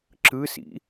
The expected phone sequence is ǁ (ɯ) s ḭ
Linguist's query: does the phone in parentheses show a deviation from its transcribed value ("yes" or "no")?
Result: no